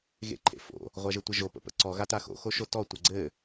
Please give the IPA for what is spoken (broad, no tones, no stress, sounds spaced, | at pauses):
ɣ ḛ ǃʰ ḛ f o̰ | ʁʷ a ʒ ɘ tʷ ɘ ʒ o p ə̰ p ə̰ ǀ ɔ ɣ a t a x o̰ x o ʃ o t ɔ tʷ ɘ ɡ͡ǀ ɘ